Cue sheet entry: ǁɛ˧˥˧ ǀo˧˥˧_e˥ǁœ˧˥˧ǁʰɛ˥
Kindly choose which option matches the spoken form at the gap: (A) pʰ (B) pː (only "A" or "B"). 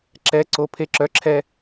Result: A